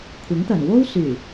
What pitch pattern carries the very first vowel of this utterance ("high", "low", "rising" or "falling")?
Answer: rising